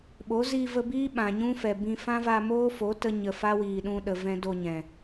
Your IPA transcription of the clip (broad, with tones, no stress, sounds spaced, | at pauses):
ɓ o˨˦ z i˧ v ə˧ b iː˦ ɓ ã˨ ɲ ũ˦ f ɛ˨ b ĩ˧ f ã˦ v a˧ m oː˦ f o˨˦ t ə˦ ɲ ə˨ f a˦ w iː˨ ɗ ũ˧ ɗ ə˨ v ɛ̃˦ d o˧ ɲ ɛ̃˨